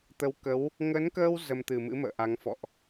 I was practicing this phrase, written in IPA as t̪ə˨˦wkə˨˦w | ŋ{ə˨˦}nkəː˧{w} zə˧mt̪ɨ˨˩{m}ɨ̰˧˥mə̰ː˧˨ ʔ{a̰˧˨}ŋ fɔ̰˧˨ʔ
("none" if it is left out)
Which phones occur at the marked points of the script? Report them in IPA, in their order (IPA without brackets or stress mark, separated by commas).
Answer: ə˨˦, w, m, a˨˦